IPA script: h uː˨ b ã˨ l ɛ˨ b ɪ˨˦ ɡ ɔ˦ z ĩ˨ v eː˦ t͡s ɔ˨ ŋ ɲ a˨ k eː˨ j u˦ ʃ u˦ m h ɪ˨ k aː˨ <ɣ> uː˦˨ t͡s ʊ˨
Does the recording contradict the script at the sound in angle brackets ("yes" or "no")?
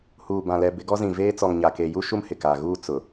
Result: no